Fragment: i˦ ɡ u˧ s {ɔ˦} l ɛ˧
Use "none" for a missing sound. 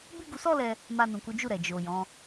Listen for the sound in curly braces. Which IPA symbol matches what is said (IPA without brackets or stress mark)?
ɔ˦